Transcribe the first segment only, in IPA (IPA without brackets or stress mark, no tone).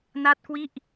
n